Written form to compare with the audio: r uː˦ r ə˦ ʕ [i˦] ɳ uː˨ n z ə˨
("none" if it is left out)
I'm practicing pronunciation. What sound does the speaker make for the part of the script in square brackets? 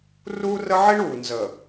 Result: i˦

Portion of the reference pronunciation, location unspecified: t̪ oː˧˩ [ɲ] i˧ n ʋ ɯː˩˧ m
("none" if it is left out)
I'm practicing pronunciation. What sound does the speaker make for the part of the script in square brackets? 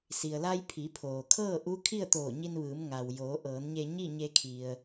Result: ɲ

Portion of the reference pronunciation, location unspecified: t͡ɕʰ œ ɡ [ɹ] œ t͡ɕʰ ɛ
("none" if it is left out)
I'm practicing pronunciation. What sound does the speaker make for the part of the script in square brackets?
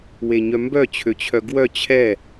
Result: w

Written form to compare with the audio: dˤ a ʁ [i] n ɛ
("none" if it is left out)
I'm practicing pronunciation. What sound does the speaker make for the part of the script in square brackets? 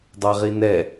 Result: i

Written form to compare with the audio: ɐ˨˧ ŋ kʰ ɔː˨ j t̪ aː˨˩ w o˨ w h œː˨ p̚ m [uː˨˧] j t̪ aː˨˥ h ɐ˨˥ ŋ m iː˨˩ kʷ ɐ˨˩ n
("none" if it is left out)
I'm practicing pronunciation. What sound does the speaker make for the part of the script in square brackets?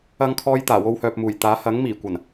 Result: uː˨˩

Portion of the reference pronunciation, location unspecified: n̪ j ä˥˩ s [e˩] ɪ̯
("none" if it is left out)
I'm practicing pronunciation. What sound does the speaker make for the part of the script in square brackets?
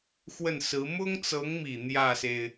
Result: e˩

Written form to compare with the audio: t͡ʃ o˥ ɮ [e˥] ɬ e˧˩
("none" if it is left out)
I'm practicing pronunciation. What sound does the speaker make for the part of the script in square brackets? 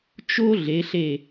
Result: e˩˧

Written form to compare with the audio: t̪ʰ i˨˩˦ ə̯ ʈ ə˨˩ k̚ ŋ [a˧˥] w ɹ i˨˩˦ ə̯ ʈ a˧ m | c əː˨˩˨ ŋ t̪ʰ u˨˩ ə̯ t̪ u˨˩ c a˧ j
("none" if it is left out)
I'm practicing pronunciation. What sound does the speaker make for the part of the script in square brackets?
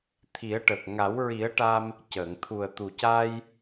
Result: a˨˩˦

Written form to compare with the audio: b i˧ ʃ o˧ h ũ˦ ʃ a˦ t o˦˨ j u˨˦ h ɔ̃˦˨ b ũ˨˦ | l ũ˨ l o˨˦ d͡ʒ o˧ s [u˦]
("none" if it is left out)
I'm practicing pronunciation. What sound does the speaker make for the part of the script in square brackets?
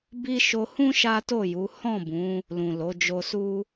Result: u˦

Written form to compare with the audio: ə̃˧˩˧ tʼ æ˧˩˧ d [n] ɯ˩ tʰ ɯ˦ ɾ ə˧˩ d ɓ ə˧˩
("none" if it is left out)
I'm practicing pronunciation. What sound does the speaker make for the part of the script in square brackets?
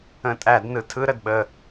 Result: n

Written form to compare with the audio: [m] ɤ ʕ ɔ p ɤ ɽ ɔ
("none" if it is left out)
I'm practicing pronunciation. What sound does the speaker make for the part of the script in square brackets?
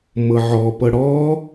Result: m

